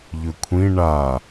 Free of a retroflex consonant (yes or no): no